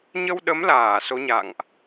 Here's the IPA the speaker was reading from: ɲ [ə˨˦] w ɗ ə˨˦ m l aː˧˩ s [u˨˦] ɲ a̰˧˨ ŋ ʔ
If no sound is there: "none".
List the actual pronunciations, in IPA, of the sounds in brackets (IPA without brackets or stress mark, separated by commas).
ə˧, o˨˦